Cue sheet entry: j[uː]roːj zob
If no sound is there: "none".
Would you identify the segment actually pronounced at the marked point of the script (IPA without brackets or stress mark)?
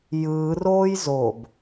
ɯː